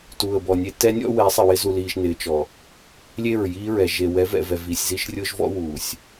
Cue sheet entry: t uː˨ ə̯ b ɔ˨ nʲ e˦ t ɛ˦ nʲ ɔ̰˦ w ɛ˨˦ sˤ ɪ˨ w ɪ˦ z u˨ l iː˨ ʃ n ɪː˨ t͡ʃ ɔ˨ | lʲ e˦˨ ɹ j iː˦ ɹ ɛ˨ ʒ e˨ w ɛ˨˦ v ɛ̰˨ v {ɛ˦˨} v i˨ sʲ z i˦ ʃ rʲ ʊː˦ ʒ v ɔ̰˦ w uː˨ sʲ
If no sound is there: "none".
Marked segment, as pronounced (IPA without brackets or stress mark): ɛ˨